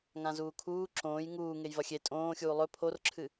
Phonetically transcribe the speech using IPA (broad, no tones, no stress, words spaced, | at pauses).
ŋãzuːkʰuː ǁõːj ŋuː ŋejvɐxʲe tʼõːxʲuː lˠɵ pʰorǁʰɨ